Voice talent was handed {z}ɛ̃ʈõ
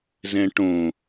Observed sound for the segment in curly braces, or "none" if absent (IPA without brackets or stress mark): z